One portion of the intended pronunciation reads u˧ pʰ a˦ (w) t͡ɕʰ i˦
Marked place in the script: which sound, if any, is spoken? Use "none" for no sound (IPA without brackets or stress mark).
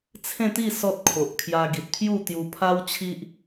w